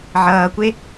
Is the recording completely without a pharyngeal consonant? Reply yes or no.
no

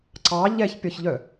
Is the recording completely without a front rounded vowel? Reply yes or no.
no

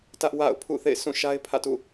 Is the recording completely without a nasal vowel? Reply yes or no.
no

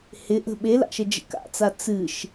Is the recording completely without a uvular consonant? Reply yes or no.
yes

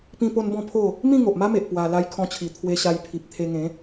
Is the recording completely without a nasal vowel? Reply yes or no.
no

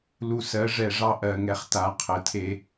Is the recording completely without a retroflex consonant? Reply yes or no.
no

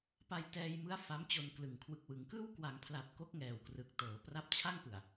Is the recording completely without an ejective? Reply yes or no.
yes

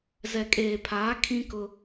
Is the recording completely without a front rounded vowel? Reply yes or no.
yes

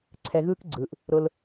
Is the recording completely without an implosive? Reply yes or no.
yes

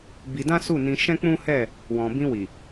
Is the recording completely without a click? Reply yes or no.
yes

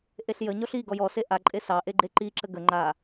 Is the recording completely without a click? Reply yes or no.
no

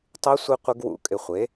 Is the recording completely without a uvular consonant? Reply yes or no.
no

